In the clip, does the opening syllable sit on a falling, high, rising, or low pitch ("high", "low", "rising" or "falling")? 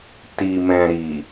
low